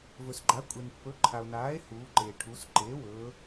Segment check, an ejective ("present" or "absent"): present